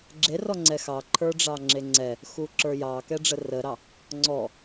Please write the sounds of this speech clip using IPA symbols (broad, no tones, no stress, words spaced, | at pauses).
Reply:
ɡ͡ǁerɔŋ͡ǀɛ xɑǃʰə˞ɖ͡ʐɑ ŋ͡ǁeŋ͡ǀɛ | xuǁə˞jɑ kɛɖ͡ʐərəɾɑ | ŋ͡ǀɔ